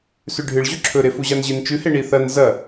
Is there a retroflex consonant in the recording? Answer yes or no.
yes